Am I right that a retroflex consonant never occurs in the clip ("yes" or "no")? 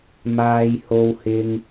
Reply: yes